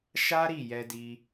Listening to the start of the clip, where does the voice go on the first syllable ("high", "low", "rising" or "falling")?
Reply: high